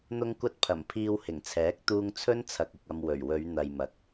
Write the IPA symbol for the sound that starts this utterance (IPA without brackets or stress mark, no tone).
n̪